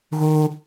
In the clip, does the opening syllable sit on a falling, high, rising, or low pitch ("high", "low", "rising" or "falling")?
high